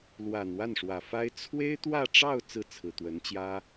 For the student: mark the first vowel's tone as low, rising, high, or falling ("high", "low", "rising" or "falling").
low